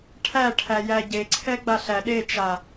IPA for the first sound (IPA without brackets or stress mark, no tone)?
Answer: ʈʰ